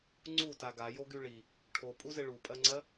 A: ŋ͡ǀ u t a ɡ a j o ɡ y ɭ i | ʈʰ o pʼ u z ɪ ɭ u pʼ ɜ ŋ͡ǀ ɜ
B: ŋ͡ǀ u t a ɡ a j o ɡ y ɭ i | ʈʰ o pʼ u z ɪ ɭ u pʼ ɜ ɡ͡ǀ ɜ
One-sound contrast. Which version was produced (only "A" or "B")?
A